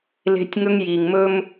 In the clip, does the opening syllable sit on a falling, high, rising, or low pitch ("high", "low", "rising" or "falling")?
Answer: high